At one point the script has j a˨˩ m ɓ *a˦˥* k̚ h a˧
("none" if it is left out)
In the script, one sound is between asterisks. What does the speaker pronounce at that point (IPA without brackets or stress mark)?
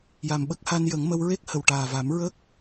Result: ə˦˥